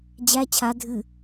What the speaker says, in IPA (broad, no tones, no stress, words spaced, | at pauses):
d͡ʑæ t͡ɕʰa dʱɨ